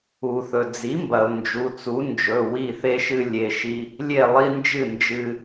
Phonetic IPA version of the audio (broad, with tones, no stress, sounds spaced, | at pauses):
u˩ θ ɵ˩ d͡z i˩˥ m b ɐ˩ ʊ̯ n d͡ʒ u˩˧˩ t͡s u˩˥ n d͡ʒ ɵ˩˧˩ w i˥˨ θ e˦ ʃ ɨ˦ lʲ e˩˧˩ ʃ i˦ | lʲ e˥˨ lˠ i˦ n d͡ʒ ɨ˥˨ n d͡ʒ ɨ˦